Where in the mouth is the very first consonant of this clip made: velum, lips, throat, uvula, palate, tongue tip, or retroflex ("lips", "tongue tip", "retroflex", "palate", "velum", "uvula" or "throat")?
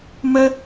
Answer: lips